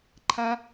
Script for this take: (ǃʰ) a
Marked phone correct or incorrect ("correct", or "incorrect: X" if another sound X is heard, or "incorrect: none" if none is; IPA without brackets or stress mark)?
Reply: correct